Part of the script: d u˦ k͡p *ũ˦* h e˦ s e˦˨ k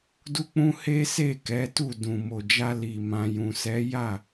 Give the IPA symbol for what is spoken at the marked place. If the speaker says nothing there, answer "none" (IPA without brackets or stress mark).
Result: ũ˦